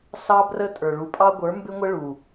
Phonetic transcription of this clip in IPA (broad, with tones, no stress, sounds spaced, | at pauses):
s ɑ˦ b r ə˦ tʼ ə˞˨ ɭ u˨ pʼ ɑ˦ ɡʷ ə˞˨˦ m b ɪ˦ ŋʷ ə˦ ɭ u˨